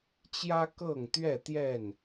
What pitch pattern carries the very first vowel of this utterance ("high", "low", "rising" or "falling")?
high